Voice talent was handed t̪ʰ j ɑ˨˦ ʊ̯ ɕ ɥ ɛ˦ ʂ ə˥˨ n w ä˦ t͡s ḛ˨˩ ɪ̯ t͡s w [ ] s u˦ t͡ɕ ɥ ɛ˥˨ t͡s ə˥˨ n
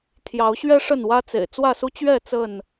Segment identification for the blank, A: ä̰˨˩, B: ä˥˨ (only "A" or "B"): B